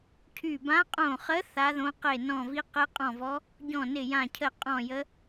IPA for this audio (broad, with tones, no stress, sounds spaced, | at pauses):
cʰ y˧˩ b ã˧˥ qʼ õ˧˩ χ ə˧˥ θ a˧˥ ð õ˧˥ q e˧˩ n ɔ̃˧˩ v i˧˥ q e˧˥ qʼ ɔ̃˧˩ v ɔ˧˥ | ɟ ɔ̃˧˩ n ɪ˧˩ j ã˧˩ cʰ ə˧˩ qʼ ɔ̃˧˩ j ə˧˥